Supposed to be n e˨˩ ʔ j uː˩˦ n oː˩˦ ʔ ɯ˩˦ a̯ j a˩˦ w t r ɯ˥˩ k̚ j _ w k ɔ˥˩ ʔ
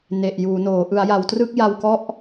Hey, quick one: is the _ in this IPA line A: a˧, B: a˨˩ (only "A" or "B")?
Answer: A